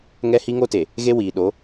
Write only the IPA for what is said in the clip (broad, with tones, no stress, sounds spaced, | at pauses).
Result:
ŋ ɛ˦ h i˦ ŋ o˦ t e˨ | ɣ e˦ w iː˨ ɗ o˨˦